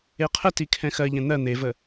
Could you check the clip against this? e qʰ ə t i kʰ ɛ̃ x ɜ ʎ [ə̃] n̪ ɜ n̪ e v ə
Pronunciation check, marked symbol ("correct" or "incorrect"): incorrect